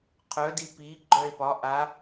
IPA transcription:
qʰœdi pi ɡ͡ǃœe̯pɒ ʔa

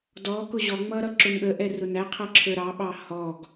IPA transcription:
dɔ kʊʑɔŋ͡mʌ ɾʌǁʊnɠəʔɛ rʊnæqʰʌ ǁʰə˞ɾɑɓɑ hɔɡ

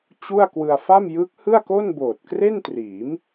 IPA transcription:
t͡ɕu˥˩a̯ kwɯ˧a̯fa˥˩m jɯː˦˥k̚hɯ˥˩a̯ko˥˩n boː˨˩t̚kre˥˩ntriː˩˦m

